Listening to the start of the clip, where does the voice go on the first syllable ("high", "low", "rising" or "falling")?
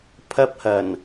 high